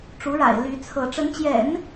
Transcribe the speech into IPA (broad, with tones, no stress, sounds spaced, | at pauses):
ʈ͡ʂ u˧˥ ɻ a̰˨˩ ɪ̯ l y˧˥ t͡sʰ ɤ˧˥ ʈ͡ʂ ə˧˥ n t͡ɕ j ɛ̰˨˩˦ n